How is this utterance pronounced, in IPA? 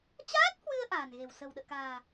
t͡ɕaː˦˥t̚hwɨ˧ə̯ ʔa̤ː˨˩nɣe̤˨˩w sə̤˨˩wɗə̰ː˧˨ka̤ː˨˩

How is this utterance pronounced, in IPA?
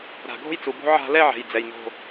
ɾa̤˨ɡʱo̤˦jt͡su˨bo̤˦ ʕa̤˦lɛ˦ʕɛ̤˨j d͡zɛ˨jno̤˦˨

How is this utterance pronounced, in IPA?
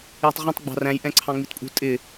jə̤tˤʁũtˤ ɡ͡bɑ̤ræ̃j ʔɛ̃ǀʰɑ̃ŋ͡mitpʼṳ tʼɪ

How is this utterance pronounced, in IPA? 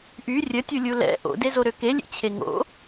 ʔy rʲətʲulʲu lɛ̰ ʔo̰dezoɾø kelʲḛt͡ɕʰe ŋo̰

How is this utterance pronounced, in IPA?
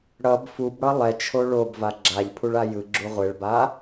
ɽʌb fubɽʌ lˠɛt͡ʃʰo ɭobva ɡ͡ǁaʎpʰuɭa jɯɡ͡ǁu ʁʷeɭba

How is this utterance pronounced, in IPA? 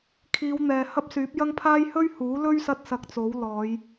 kʰiː˨˧wn̪ɛː˨hɐ˥p̚ syː˨˥p̚ jɐ˥ŋpʰaː˥j hɵ˥ɥhuː˨˥lɵ˥ɥ sɐ˥t̚sɐ˧k̚t͡so˨˥wlɔː˨˧j

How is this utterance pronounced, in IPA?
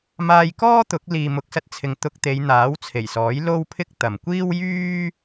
maː˧j kɔː˥t̪ʊ˨˥k̚ liː˨mʊ˨k̚sɐ˧t̚t͡sʰɪ˨ŋ t̪ʊ˧k̚t̪e˨˧j n̪aː˨˥wt͡sʰe˨˩jsɔː˨˥j lo˥wpʰɪ˥k̚ t̪ɐ˨mkʷiː˥wjyː˥

